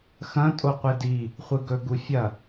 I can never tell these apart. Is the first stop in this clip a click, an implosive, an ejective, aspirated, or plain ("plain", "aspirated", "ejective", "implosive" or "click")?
ejective